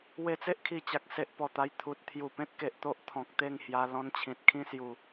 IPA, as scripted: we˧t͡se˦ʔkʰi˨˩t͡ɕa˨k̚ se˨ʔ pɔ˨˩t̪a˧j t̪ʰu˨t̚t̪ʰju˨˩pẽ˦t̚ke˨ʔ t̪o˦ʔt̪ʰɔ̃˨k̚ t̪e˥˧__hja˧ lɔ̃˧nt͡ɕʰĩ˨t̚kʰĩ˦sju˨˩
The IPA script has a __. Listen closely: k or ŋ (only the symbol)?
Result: ŋ